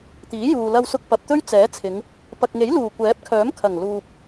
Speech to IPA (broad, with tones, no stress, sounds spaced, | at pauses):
t̪ iː˨˥ j uː˨ l ɐ˧ w s ʊ˧ k̚ p ɐ˨ p̚ t̪ ɵ˥ ɥ t͡s ɛː˨˥ t͡sʰ ɪ˨˧ ŋ | p ɐ˨ k̚ ŋ e˨˥ j l uː˨˩ kʷ ɛː˨˥ p̚ kʰ œː˨˥ m kʰ ɐ˨˩ ŋ l uː˨ p̚